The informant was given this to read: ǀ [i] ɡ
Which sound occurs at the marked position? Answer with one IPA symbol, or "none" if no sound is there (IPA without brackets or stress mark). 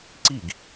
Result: i